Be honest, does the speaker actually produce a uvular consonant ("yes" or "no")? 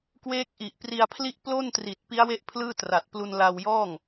no